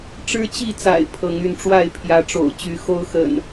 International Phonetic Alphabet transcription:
ʈ͡ʂ ɻ̩˦ t͡ɕ i˥˨ t͡s a̰˨˩ ɪ̯ pʰ ɤ˨˦ ŋ y˥˨ n ʈ͡ʂ w a˥˨ ɪ̯ pʰ j ä˨˦ ʈ͡ʂ o̰˨˩ ʊ̯ t͡ɕ y˨˦ x o˦ ʊ̯ x ə̰˨˩ n

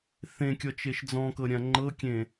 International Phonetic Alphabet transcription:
θ ẽ kʲ ɔ t͡ʃ e ʃ d͡z ɔ̃ k ɤ ɾʲ ã ŋ͡ǃ ɤ kʲ ẽ

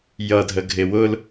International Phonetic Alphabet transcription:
j ʌ dʱ ə ɡʱ ɪ w ʊ l

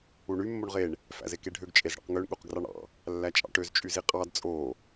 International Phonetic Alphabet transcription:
u ɳ y mː o ɳ ʁ e ɳ | f æ̰ z e k e ɖʱ ø ɡ t͡ʃʼ e z ɽ ɑ̰ q ŋ ø ɳ ɠ u q ɡ r ɑ ɳ ɑ̰ | lː æ t͡ʃʼ ɑ̰ ʈ ø z t͡ʃʼ y z i qʼ ɑ d t͡sʼ o

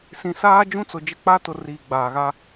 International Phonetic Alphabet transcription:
s ĩ˨ s aː˦ d͡ʒ ũ˦ t͡s ʊ˨ d͡ʒ ɪ˦ k͡p a˦ t ʊ˨ r iː˨ ɡ͡b aː˨ ɣ a˦

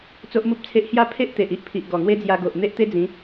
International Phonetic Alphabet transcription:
t͡s o˦ ʔ m u˦ p̚ t͡sʰ e˦ ʔ h j a˥˧ pʰ e˦ ʔ t̪ e˨ ʔ i˦ ʔ pʰ i˨ ʔ ɡ ɔ˨˩ ŋ w e˦ d͡z j a˧ ɡ o˨ ʔ n̪ e˦ ʔ t̪ e˦ d͡z ĩ˨˦

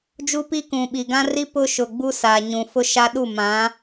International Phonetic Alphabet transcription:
d͡ʒ u˦ p i˦ k ũ˨ ɓ i˨ ɡ ã˦ r i˦ p ʊ˦ ʃ ʊ˨ ɡ͡b u˦ s a˨ ɲ ũ˨ f ʊ˦ ʃ a˦ ɗ u˦˨ m ã˨˦

